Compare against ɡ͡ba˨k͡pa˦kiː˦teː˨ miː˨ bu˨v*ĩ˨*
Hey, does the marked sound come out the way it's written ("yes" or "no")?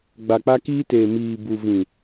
yes